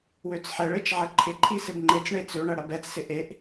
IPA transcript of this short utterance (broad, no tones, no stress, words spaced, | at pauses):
wøt͡sħɛɭet͡ʃ ʕɐǃʰɪǃʰi sɪbŋ͡ǃet͡sɳe t͡søɳɐ ɽɐbɛt͡ssɪ ʔeʔ